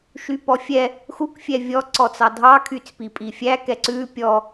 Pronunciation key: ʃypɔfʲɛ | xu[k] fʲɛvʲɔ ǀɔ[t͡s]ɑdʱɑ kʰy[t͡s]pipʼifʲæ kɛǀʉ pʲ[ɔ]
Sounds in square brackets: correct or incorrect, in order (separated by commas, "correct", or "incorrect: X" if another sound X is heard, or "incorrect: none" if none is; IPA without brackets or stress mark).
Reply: correct, correct, correct, correct